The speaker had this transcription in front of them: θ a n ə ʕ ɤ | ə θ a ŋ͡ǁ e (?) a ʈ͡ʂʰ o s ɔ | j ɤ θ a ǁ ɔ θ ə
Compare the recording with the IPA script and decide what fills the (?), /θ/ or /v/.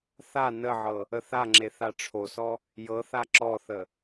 θ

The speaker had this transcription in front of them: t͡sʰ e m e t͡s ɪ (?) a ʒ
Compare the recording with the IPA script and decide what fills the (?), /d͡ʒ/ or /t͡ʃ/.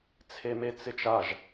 t͡ʃ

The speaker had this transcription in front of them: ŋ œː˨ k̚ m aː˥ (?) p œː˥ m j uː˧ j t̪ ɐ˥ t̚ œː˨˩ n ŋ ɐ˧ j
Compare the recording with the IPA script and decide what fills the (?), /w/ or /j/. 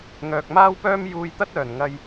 w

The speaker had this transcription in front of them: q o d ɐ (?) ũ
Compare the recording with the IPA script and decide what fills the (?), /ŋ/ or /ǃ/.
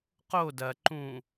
ǃ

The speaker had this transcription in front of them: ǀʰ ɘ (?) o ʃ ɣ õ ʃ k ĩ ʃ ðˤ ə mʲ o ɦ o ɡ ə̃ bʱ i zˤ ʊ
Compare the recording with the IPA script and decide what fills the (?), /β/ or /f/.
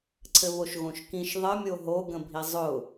β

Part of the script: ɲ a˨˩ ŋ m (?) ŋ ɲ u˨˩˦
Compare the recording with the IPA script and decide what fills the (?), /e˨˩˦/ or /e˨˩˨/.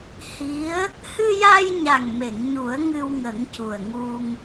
e˨˩˨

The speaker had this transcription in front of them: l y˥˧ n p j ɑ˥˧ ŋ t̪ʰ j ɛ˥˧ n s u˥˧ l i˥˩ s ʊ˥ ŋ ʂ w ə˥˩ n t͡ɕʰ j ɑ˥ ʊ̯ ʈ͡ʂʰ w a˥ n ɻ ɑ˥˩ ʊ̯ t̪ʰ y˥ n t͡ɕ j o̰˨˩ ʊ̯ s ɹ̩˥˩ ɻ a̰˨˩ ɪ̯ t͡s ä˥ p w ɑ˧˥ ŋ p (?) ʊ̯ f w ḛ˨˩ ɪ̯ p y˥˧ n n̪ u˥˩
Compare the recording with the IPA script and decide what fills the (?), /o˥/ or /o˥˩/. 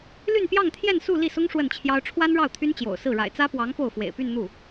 o˥˩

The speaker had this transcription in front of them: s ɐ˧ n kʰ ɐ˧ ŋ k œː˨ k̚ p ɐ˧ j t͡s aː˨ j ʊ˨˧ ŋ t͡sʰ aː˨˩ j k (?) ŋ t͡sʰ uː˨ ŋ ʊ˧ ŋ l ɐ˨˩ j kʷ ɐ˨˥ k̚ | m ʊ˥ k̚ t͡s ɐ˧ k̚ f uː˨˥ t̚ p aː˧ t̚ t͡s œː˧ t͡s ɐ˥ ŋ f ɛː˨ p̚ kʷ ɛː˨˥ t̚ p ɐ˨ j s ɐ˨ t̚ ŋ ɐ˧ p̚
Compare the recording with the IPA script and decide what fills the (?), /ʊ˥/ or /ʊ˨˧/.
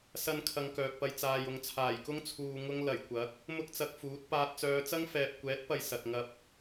ʊ˥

